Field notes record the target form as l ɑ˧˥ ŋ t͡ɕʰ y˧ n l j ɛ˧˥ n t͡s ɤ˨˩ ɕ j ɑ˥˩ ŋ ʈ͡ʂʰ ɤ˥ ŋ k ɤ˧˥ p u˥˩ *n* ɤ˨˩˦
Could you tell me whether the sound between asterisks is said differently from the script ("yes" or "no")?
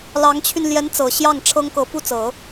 yes